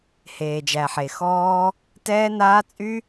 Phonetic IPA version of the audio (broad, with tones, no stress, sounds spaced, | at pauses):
h eː˨ d͡ʒ æ˨ ħ e˨ x ɔː˦ | t ɛː˦ n aː˦ t͡sʼ y˦